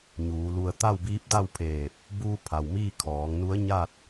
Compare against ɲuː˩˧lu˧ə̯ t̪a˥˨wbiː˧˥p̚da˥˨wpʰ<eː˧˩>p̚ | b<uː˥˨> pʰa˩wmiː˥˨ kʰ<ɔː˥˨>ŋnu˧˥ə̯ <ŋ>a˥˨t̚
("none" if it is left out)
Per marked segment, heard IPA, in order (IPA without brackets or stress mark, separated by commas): eː˧˩, uː˧, ɔː˩˧, ɲ